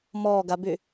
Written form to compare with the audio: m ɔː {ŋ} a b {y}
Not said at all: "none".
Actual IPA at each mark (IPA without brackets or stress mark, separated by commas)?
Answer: ɡ, y